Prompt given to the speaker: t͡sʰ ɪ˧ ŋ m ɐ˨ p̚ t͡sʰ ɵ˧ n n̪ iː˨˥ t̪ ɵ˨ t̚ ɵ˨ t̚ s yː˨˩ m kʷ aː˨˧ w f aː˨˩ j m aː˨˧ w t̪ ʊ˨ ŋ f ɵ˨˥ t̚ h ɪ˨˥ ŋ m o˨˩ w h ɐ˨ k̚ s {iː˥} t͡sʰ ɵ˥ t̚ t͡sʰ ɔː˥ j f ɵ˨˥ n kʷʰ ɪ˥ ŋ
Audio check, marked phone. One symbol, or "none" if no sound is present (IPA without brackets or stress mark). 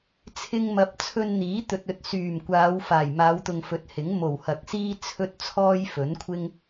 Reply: iː˥